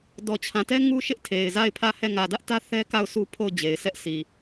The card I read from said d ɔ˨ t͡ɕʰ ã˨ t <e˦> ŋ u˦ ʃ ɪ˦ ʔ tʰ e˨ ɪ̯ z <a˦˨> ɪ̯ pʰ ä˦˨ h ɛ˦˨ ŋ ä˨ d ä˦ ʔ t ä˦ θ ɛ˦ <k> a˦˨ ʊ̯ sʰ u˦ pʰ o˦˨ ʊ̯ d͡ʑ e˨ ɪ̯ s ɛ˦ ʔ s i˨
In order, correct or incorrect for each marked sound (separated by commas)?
incorrect, correct, correct